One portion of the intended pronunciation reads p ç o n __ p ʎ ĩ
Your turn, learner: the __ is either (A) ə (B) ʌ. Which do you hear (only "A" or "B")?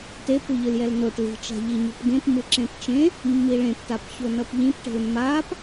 B